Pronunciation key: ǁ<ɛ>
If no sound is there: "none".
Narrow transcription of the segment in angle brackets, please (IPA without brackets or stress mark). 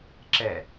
ɛ